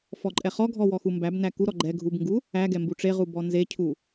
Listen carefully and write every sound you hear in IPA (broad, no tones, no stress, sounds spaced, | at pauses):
f ɔ ǃʼ ɛ χ ɔ ɡʱ ɔ w ɔ x u m b æ b n æ k u ɾ ɔ ɡ͡ǃ ɛ ɡʱ u b ŋ ɡ u | æ ɡ ɛ m b u ʈ͡ʂ e ʁ u b ɔ n z e cʰ u